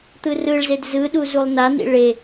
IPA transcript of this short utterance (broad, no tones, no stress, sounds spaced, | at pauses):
t̪ ɯ r ɯ ɭ z e d z ɯ ɗ u z u lˠ n a n̪ ḭ ɭ e